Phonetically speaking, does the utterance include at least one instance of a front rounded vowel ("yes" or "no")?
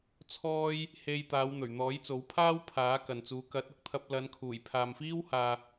no